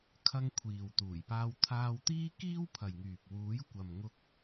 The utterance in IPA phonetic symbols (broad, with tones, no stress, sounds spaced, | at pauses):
kʰ ɐ˧ ŋ kʷʰ iː˨ w t̪ uː˨˩ j p aː˧ w t̪ʰ aː˧ w t̪ iː˥ k iː˥ w pʰ ɐ˨ j ŋ yː˨ p̚ w uː˨˥ j kʷ ɐ˨ m ŋ ʊ˧ k̚